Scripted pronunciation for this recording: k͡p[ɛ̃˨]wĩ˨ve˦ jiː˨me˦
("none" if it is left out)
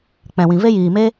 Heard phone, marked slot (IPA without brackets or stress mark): ɛ̃˨